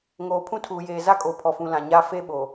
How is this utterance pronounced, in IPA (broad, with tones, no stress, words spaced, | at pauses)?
ŋoː˨pʰũ˦tʰuː˨jeː˨ za˦kʼo˨pʰɔ˨fũ˨ lã˨ɲa˦ fe˦ ɓo˨